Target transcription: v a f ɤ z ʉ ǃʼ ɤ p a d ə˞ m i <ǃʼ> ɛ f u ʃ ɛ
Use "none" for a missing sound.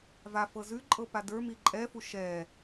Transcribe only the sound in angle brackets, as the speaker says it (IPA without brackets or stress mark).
ǃʼ